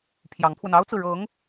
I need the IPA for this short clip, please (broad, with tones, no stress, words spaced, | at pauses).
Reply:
pʰjɑ˧˥ŋpʰwə˧n ɑ˥ʊ̯t͡sɹ̩˨ ɻɤ˧˥ŋ